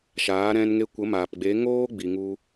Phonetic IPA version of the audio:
ʃ aː˨˦ ɾ ɛ̃˧ n ŋ e˧ kʷ ə˨˦ m aː˨ p ɡ͡b e˨˦ ŋ oː˦ ɡ͡b i˧ ŋ u˦

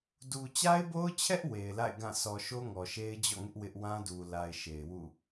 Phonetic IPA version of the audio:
d u˨ t͡ɕ a˦ ɪ̯ b o˦ ʊ̯ t͡ɕʰ ɛ˦ ʔ w e˨ ɪ̯ l a̰˦˨ ɪ̯ ɡ ã˦˨ sʰ ɔ˨ ʃ o˦ ŋ ɔ˨ ʃ e˦ ɪ̯ d͡ʑ ɔ̰˦˨ ŋ ɪ˦ ʔ w ɪ˦ ʔ w ã˦ d u˨ l a˨ ɪ̯ ʃ e˨ ɪ̯ w ṵ˦˨

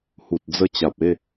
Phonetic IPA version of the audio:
h u˨ t̚ d͡z ə˧ t͡ɕ a˨ p̚ e˥˧

